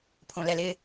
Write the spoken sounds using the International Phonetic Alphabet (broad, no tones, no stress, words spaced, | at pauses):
pʰõlɛlɪ